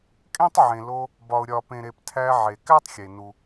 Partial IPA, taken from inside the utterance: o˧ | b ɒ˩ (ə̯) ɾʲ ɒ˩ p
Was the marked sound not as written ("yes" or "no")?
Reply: yes